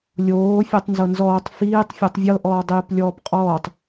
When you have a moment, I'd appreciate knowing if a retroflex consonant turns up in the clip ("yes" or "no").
no